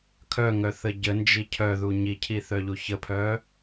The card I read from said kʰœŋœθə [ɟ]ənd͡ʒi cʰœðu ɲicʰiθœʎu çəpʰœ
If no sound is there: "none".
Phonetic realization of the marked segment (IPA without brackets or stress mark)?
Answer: ɟ